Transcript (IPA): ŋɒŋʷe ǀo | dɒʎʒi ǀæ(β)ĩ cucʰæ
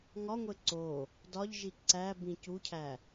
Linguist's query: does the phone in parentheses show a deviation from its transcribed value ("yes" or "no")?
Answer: yes